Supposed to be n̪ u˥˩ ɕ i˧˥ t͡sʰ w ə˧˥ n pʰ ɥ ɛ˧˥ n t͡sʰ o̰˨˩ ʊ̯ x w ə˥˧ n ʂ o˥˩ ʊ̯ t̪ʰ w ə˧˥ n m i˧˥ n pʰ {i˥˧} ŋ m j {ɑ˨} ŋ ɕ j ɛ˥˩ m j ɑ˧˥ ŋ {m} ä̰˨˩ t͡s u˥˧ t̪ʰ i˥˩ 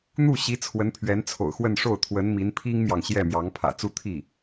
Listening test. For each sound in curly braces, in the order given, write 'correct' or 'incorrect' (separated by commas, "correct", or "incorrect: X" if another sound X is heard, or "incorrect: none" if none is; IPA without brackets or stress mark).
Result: incorrect: i˥, correct, incorrect: pʰ